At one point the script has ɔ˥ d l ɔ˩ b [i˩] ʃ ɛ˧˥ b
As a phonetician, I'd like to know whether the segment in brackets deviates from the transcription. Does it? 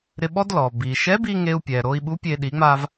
no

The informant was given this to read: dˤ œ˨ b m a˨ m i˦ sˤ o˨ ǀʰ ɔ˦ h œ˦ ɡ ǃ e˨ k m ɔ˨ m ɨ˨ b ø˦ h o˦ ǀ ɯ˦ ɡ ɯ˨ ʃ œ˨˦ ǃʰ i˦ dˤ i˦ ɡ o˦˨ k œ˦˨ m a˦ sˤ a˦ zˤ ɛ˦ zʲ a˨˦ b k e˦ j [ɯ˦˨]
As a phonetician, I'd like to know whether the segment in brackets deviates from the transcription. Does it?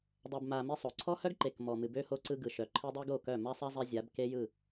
no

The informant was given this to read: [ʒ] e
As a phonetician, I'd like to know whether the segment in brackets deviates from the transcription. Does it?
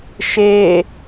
yes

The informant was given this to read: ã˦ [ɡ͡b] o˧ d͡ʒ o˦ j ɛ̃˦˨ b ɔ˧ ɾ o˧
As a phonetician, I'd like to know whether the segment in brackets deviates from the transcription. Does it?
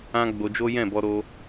no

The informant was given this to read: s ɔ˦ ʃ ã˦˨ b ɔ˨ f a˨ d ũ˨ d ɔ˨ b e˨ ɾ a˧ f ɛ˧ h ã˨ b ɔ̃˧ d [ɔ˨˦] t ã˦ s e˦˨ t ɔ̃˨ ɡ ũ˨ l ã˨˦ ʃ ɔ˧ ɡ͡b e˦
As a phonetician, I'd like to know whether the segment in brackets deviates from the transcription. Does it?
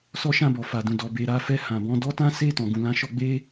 yes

